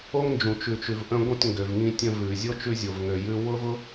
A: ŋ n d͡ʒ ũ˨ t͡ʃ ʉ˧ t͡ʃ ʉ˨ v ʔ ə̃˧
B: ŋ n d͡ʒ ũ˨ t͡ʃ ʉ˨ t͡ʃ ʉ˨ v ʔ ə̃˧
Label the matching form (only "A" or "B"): B